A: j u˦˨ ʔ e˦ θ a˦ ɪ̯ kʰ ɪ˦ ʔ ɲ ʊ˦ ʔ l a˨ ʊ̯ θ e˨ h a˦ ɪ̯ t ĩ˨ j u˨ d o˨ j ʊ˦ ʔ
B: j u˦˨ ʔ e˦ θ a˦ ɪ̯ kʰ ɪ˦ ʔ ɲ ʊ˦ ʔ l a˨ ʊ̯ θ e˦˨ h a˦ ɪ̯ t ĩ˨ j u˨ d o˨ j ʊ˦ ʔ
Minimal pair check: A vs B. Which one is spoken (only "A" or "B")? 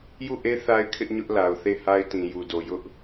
B